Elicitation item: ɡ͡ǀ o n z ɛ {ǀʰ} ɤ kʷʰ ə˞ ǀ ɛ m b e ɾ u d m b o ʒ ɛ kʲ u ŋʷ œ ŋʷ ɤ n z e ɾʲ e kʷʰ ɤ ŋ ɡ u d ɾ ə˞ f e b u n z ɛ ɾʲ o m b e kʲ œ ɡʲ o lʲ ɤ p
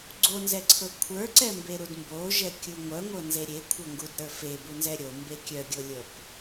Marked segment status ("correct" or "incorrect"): correct